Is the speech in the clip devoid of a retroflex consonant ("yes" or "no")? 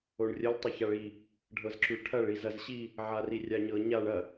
no